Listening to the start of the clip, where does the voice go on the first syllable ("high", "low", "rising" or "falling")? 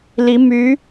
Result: rising